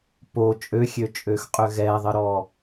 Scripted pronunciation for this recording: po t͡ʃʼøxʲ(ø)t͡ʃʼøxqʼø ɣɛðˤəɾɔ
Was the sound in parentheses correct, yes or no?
yes